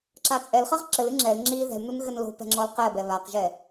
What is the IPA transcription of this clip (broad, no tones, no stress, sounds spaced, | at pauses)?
ǁ a t͡sʼ ɛ l χ ɐ ʁ ǁ ɘ l ɨ ŋ͡ǁ ɛ l ŋ͡ǁ i ð ɛ̤ l n u n ɣ ɘ n l o̤ p ɛ̤ ŋ͡ǁ ɔ l q ɛ b ɛ β a q ʒ ɛ